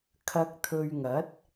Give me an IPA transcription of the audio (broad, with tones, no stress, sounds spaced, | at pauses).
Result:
kʰ ɐ˧ k̚ t̪ʰ ɵ˧ ɥ ŋ ɐ˨˥ t̚